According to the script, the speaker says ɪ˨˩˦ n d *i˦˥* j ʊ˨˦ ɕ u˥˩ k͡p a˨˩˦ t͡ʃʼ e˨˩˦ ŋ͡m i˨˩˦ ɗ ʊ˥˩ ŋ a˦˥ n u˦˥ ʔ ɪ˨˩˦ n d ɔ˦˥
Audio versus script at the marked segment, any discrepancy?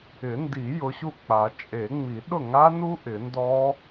yes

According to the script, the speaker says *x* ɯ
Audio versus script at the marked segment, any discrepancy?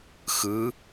no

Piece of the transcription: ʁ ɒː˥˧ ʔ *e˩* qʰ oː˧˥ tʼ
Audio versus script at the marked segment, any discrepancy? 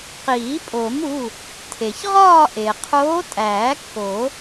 no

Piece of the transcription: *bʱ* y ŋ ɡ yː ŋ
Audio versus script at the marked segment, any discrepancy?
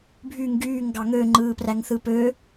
no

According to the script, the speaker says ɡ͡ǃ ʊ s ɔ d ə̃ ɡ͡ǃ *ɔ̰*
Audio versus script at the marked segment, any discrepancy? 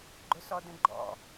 no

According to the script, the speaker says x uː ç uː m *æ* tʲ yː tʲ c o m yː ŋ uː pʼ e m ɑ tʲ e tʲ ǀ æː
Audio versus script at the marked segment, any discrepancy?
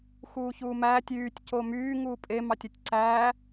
yes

